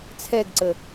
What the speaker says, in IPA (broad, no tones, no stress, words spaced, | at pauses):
t͡sʰɛɡǀə